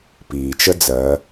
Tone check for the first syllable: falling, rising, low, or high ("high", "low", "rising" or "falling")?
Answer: low